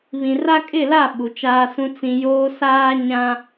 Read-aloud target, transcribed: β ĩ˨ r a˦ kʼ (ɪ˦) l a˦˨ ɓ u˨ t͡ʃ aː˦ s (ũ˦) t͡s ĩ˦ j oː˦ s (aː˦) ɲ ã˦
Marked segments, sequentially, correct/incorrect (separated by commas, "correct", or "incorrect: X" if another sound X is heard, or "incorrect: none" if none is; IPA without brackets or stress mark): incorrect: ɪ˦˨, correct, correct